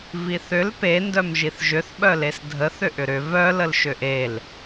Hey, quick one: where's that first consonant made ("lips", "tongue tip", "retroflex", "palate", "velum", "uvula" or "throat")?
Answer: lips